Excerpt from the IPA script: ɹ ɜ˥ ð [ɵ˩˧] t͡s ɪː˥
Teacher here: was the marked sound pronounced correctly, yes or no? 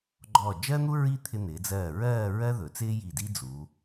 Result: yes